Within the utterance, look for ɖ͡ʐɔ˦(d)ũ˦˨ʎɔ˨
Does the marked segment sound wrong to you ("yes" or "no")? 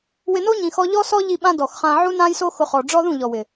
yes